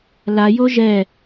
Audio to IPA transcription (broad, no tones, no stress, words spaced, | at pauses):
la joʒɛ